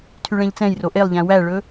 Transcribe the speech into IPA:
tʰyɭɛ̃ʎt͡sɛ̃j roʔelˠʎæ̃ wæɭɵ

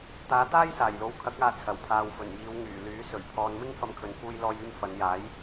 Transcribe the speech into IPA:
t̪aː˨˧t̪aː˥j saː˨˩jlo˨wkʰɐ˨˥k̚aː˨ t͡sʰɐ˨˩wpʰaː˨wfɵ˨˩njiː˨˧w ŋyː˨˩lyː˨˥ sɵ˨˩ɥpʰɔː˨nmɪ˥ŋ fɐ˧mkʰɵ˨nfuː˧j lɔː˧jyː˧m fɐ˨˧njaː˨˥j

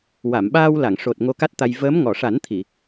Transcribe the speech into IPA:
wa˨˩˨mɓaː˧wla˨˩˨ŋ ʂo˨˩t̚ ŋo˧ka˦˥t̚t̪a˧j vəː˧˥m ŋɔ˨˩˨ʂa˨˩˦nt̪ʰi˨˩˨

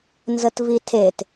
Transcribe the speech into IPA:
nzətvitʰet

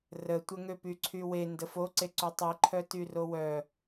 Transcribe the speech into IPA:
rətʷə ŋøpyǀʰywe ndəfoǀe ǀutˤiǃʰœ tyrowœ

